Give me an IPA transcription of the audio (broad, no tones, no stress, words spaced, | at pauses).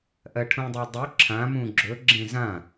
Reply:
ʔɜʈʰũdˤedˤu ǁʰã mũɡ͡ǁɵ ɡ͡ǁẽzã